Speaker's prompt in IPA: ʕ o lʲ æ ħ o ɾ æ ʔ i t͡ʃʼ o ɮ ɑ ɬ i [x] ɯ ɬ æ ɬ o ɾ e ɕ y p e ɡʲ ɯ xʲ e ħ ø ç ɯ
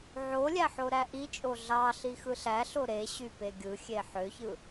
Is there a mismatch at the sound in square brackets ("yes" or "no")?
no